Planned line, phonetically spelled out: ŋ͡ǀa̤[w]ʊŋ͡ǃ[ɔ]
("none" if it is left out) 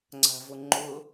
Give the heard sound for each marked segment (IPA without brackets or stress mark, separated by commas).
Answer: v, ʊ